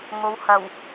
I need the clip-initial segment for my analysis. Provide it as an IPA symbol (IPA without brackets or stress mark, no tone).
ŋ